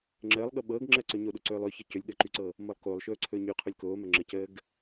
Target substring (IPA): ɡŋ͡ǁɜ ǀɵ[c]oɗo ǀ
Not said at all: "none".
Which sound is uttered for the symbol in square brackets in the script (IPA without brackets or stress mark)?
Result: ɲ